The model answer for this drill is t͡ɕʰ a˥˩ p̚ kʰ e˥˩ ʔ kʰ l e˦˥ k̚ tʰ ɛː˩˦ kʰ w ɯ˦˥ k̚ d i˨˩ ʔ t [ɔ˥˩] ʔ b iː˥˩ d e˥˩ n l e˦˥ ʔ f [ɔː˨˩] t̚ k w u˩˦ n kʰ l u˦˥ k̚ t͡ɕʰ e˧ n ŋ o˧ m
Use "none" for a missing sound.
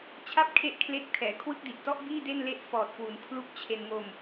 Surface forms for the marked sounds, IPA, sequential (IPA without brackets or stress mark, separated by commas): ɔ˥˩, ɔː˨˩